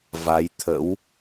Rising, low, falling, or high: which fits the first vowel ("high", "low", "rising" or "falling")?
rising